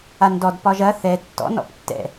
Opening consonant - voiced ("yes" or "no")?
yes